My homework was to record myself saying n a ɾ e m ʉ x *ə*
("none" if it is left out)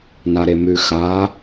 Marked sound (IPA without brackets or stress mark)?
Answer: a